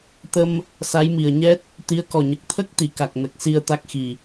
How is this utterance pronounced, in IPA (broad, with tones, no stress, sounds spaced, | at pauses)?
t̪ ə˧ m | s a˧˥ j m i˨˩ ə̯ ɲ ɛ˦˥ t̚ | t̪ i˧˥ ə̯ k ɔ˨˩ ɲ ə˨˩ k̚ t̪ʰ ə˦˥ k̚ t̪ i˨˩˨ k a˨˩ k̚ n ə˨˩ k̚ s i˧ ə̯ t̪ a˦˥ k̚ x i˨˩